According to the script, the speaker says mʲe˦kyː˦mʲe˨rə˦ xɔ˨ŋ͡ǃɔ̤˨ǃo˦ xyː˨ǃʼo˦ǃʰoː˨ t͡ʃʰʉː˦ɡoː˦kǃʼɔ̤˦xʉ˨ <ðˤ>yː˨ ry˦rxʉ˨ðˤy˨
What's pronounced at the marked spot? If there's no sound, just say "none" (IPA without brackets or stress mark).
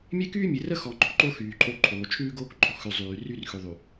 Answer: zˤ